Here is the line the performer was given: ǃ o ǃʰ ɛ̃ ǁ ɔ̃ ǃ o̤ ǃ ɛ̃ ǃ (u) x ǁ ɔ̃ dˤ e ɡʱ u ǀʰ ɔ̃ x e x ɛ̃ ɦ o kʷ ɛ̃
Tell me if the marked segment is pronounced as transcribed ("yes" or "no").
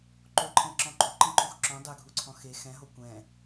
yes